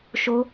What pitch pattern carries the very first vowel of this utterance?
high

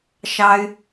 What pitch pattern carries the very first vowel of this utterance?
high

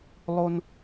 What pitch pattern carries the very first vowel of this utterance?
high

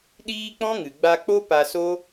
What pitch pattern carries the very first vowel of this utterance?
high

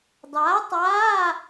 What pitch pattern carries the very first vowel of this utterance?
rising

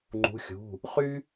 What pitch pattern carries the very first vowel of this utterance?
rising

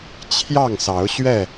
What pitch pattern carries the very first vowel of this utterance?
falling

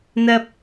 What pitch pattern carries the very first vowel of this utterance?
high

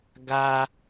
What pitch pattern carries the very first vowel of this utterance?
high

